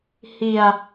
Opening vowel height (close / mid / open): close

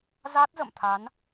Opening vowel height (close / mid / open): open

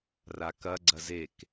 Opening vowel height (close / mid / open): open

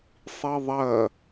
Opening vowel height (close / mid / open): close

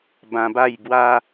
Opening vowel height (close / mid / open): open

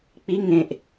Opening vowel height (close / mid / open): close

